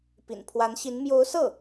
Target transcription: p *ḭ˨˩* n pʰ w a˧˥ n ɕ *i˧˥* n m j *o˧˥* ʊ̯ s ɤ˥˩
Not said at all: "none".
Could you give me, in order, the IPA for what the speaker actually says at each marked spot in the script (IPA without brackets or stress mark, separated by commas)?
ḭ˨˩, i˧˥, o˧˥